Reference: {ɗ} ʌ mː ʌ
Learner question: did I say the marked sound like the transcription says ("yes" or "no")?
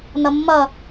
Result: no